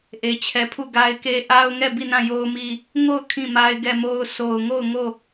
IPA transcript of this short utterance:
ʔe˨t͡ɕʰɛ˨pʰu˦˨ ɡa˦ɪ̯ke˦ ʔa˦ʊ̯ŋɛ˦˨ bi˦˨nã˦˨jo˦ʊ̯mi˦ | ŋo˦˨ʊ̯ kʰĩ˦˨ma˦ɪ̯ɡɛ˦˨mo˦ʊ̯ so˨ʊ̯ŋo˦˨ʊ̯ŋo˦˨

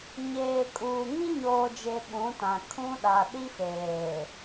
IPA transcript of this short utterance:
ɲeː˨kʼuː˨ ŋĩ˦ɲoː˨d͡ʒe˨ ɓũ˨˦tã˨ kʰũ˦ɗa˨ ɗi˦feː˨

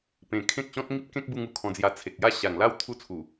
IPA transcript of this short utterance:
pẽ˧ kʰẽ˦k̚ɕɔ̃˦t̚ ŋi˦p̚kẽ˦k̚bu˧ŋ u˨˩kʰɔ̃˧d͡zja˧ t͡sʰe˨k̚ja˦ ɕa˨˩ŋla˥˧w t̪ʰu˦t͡sʰu˨˩

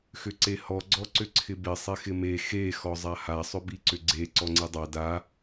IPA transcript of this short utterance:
xʏǀehɔ ɡ͡ǀɔǀʏǀʰɪbɪ sˤexɪme xe xɔzˤaha sˤʏbiǀʏɡ͡ǀe ǀɔŋ͡ǀidˤa da

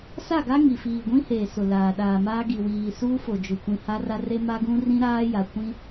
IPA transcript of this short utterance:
sa˦˨ɡa˦ ŋi˨fiː˨ɡʷĩ˦heː˨ sʊ˨laː˨ɗaː˨maː˦ ɡi˨wiː˨ suː˦fo˨d͡ʒʊ˨ kʷĩ˨ha˦ra˦re˦ ma˦ɡũ˦ rĩ˦ɾaː˦ja˨ kʷĩ˦

